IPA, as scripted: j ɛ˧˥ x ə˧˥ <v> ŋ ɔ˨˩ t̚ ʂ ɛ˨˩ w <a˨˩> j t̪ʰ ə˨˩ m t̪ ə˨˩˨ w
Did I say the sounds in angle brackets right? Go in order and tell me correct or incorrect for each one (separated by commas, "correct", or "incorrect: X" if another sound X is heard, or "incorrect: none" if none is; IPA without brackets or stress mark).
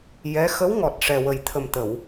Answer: incorrect: w, incorrect: ə˨˩